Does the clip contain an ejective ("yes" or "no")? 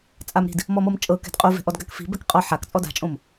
yes